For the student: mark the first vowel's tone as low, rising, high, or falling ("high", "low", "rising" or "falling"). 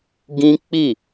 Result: high